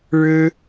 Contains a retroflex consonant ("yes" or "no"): yes